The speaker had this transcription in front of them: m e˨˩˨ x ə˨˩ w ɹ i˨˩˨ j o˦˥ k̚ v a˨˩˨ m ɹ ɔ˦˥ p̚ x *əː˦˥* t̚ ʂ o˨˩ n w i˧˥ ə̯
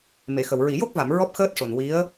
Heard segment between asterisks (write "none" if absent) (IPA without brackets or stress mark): əː˦˥